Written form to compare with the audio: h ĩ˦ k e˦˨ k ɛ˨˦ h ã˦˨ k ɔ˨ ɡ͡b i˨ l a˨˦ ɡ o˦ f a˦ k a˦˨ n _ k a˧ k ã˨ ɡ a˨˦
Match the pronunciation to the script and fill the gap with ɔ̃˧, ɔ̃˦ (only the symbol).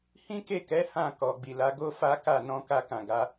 ɔ̃˧